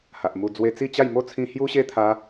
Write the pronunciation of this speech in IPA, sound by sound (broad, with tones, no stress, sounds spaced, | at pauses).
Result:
h a˨ ʔ m u˧ d͡z w e˧ t͡s i˥˧ t͡ɕ a˥˧ j m o˥˧ t͡sʰ ĩ˧ h j u˦ ɕ e˦ t̪ʰ a˧